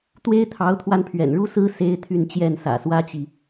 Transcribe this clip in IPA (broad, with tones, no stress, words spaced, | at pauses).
t̪we˦ɪ̯t̪ʰɑ˨˦ʊ̯t̪ʰwa˧n pʰɥɛ̰˨˩nɻu˦sɹ̩˦ se˦ɪ̯t̪ʰy˥˨nt͡ɕjɛ˥˨n sä̰˨˩swä˦t͡ɕi˨